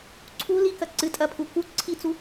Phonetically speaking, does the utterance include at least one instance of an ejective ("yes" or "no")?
yes